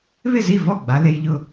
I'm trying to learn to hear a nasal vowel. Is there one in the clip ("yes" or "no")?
no